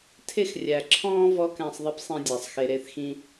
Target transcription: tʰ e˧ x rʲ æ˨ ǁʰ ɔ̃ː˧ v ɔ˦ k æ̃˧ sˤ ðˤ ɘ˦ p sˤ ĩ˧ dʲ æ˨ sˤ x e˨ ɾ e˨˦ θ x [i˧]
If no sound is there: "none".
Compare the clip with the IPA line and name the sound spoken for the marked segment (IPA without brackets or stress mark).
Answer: ĩ˧